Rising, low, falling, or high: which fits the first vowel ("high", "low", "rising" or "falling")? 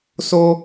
high